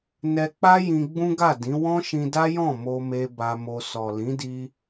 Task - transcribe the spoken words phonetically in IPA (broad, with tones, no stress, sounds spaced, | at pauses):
n ɛ˧ k͡p a˦ j ĩ˧ ɡ͡b ũ˦ ɡ a˦˨ d ĩ˨˦ w ɔ̃˦ ʃ ĩ˧ d a˦ j ɔ̃˦˨ m o˧ m e˧ b a˧ m o˧ s ɔ˨ l ĩ˨˦ d i˧